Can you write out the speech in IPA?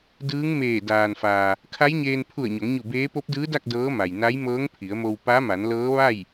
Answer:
dɯː˧˥ŋmeː˧˩ daː˩nfaː˩ | kʰa˧˥jɲeː˧n pʰu˧˩ə̯ɲo˩˧ŋɲu˧˩ beː˧˥ po˧˥p̚dɯː˧˥da˥˨k̚ dɤː˧˥ma˩jna˧˥j mɤː˧˥ŋpʰi˩˧ə̯mo˧w pa˧˥ma˩˧nlɤː˧˥ ʋa˥˨j

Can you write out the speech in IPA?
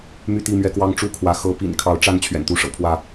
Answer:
my˥˨t̪i˥˨mɥɛ˦kwɑ˦ŋ ʈ͡ʂu˦kʰwä˨˦ xɤ˨˦pḭ˨˩n kʰɑ˨˦ʊ̯ʈ͡ʂa˥˨n t͡ɕʰɥɛ̰˨˩nt̪u˦ʂɤ̰˨˩pʰwä˥˨

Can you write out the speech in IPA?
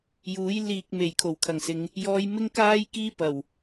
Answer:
juː˨˥j liː˨k̚ me˨˩j kʰo˨˩wkʰɐ˨˩ŋsɪ˨˧ŋ | jɔː˧jmɪ˥ŋkaː˥jkiː˥ pɐ˨˩w

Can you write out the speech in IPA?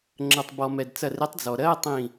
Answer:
ŋ͡ǁɜ˩tˤbɔ˩ mɛ˩dt͡sɐ˧˩r ɪ˨˥tˤd͡zɔ˩ ɾɜ˧˥˧tˤĩ˧˩

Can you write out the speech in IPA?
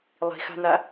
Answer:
lˠi̤xa̤n̪a

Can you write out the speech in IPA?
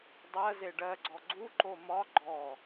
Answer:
dˤɜze ɖɜɡ͡ǀɔ ɡ͡ǀuǃo mɒ ɡ͡ǃɔ

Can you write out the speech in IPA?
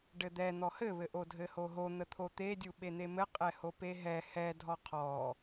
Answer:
ɖɘd̪ɛ n̪ɔhɘβɘ ʔodʱɘhoɦo n̪ət̪ʰot̪e dʲuɓen̪emɘ qʼɛhopeɦɛ hɛ dʱɔqʰɔ

